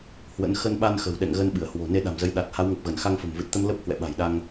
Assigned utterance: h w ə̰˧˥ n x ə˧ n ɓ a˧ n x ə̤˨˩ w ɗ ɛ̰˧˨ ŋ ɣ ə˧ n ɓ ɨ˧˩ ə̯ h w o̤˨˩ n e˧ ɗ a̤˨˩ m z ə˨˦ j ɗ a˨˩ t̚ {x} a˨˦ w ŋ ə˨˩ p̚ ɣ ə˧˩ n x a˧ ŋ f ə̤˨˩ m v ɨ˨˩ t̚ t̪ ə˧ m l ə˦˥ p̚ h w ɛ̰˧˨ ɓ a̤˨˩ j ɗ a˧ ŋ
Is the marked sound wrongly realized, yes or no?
yes